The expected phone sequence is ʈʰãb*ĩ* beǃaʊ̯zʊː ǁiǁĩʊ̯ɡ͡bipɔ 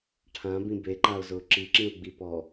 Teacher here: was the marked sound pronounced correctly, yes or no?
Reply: yes